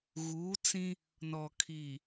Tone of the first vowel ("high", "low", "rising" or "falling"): rising